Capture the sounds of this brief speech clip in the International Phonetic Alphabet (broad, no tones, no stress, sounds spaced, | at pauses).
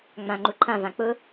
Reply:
ŋ͡m ã ŋ͡ǃ u ǃʰ ã v ã k͡p ʊ